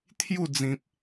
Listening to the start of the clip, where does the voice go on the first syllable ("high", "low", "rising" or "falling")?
falling